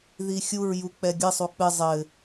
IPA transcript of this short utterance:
ð i xʲ u ɹ j u k͡p ɛ ɡʲ ɨ sˤ u k͡p ɨ zˤ ɘ

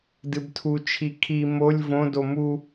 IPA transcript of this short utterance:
d ɨ b tʰ u t͡ʃʰ i kʰ i m o lʲ v õ d o m u

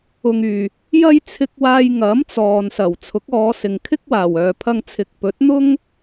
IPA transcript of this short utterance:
ʊ˨ ŋ yː˨˩ | j ɐ˧ j t͡sʰ ɪ˨ k̚ w aː˨ j ŋ ɐ˨˥ m t͡s ɔː˨ n s ɐ˨˩ w t͡sʰ ʊ˨˥ k̚ ɔː˨˧ s ɪ˨ ŋ kʰ ɪ˥ k̚ w aː˨˩ w œː˨ pʰ ɐ˧ ŋ t͡sʰ ɪ˨ k̚ p ɵ˨˥ t̚ n̪ ʊ˥ ŋ

